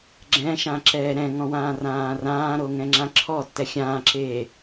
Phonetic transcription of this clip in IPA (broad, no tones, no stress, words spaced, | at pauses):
ɡ͡ǁɛ̃ ʃãǁɛːɾɛ̃ŋɔ̃ wãːrãːrãːɾo ŋɛ̃ŋ͡ǁãǁʰɔtːɛ xʲãːǁeː